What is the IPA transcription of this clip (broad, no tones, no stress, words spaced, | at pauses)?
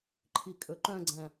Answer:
ǃʰikʼɵǃœ̃ɡ͡ǀæ̃